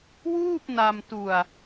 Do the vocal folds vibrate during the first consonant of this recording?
yes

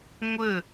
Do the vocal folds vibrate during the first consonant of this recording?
yes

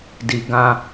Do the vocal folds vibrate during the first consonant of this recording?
yes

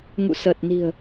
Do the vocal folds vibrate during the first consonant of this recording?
yes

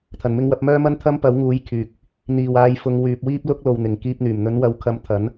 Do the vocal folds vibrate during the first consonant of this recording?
no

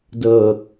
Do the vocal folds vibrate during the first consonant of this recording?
yes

